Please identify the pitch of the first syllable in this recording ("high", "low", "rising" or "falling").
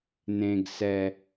low